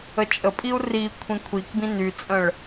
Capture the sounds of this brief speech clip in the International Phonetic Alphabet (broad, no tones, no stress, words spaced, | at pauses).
ət͡ʃʼəpʼiu̯ ri kʷʰĩkʷʰikbĩ nyt͡sʼə̃ɭ